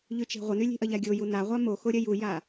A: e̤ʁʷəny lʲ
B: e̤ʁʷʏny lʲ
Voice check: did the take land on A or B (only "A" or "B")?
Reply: A